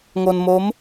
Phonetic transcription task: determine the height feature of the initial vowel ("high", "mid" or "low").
mid